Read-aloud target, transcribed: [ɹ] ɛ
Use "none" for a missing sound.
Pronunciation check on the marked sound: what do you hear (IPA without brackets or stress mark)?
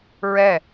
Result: ɹ